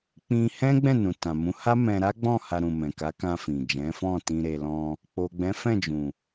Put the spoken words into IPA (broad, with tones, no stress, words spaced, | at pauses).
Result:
k͡pĩ˧ hɛ̃˦ ɡ͡bɛ̃˦˨nũ˨ tã˨mũ˨˦ ha˦mɛ̃˧ɾa˦ɡ͡bɔ̃˦˨ ha˧ɾũ˨mɛ̃˨ka˨˦ kã˧ fĩ˨d͡ʒɛ̃˨˦ fɔ̃˦˨ tĩ˧ɾe˧ lɔ̃˧ | k͡po˨ɡ͡bɛ̃˨˦fɛ̃˦˨d͡ʒũ˨